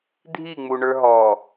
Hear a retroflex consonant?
yes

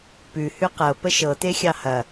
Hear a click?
no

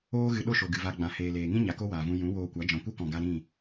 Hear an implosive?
yes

